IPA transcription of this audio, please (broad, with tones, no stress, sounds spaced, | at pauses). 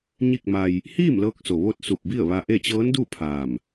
ɲ i˥˨ k̚ m a˧ j | h iː˥˨ m l ɤː˧ k̚ s o˩ ʋ o˧ t̚ s u˧˩ p̚ b i˥˨ ə̯ ʋ a˧ ʔ e˥˨ t͡ɕ ɤː˧˥ n d u˥˨ pʰ aː˧˩ m